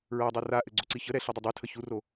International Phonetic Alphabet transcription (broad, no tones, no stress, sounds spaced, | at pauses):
ɹ a dˤ a r a ʔ ɘ ɡ͡ǀ o ǀ i ç ə ɾ ɛ ɬ ɘ dˤ ə dˤ u tʰ ə ç u r o